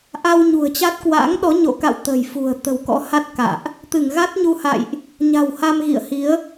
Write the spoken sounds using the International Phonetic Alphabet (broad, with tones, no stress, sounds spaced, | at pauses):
ʔ a˧ w ɲ ṳ˨˩ ə̯ t͡ɕ a˦˥ t̚ k w a̰˧˥ ŋ ɗ ɔ˨˦ ɲ o̰˧˨ k a̰˧˨ w t̪ ə̤˨˩ j f ṳ˨˩ ə̯ t̪ ə̤˨˩ w k ɔ̰˧˥ h a˦˥ t̚ k a̰ː˧˨ ʔ | t̪ ɨ˧˩ ŋ ɣ a˦˥ t̚ ɲ u˧ h a̰˧˨ j ʔ | ɲ a̤˨˩ w h a˧ m ɣ ḭ˧˨ ə̯ h i˨˦ ə̯